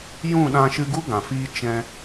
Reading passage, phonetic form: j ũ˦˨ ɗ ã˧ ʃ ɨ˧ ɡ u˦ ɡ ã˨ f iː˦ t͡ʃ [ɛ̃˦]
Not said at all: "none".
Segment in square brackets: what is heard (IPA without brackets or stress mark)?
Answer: ɛ̃˦